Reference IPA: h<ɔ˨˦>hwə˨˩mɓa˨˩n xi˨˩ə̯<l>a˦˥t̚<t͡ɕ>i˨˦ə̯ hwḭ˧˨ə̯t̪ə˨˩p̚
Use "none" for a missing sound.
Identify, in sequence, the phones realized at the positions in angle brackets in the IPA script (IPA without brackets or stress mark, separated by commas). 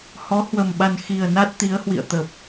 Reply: ɔ˨˦, n, t̪